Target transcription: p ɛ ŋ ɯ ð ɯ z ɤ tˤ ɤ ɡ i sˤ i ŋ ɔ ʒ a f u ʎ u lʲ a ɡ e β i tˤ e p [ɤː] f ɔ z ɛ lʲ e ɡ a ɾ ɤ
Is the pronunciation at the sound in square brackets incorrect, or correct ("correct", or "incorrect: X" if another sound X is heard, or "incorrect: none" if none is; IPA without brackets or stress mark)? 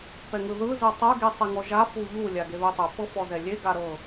incorrect: ɤ